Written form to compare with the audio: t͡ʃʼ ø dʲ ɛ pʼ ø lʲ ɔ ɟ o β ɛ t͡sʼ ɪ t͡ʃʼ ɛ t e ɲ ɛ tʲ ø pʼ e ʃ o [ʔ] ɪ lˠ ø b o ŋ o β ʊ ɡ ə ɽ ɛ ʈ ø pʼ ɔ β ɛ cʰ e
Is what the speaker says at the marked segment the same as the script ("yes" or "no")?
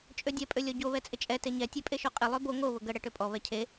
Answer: no